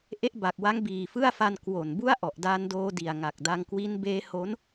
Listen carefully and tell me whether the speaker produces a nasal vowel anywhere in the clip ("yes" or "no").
no